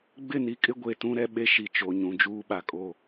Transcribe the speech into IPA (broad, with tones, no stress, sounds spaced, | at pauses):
ɡ͡b ɪ˦˨ n i˦ kʼ ɪ˦ ɡʷ e˨ t ũ˦ ɾ ɛ˦ ɓ e˦ ʃ i˨ t͡ʃ o˨ ɲ ũ˨ d͡ʒ uː˦ ɓ a˨ kʼ o˦˨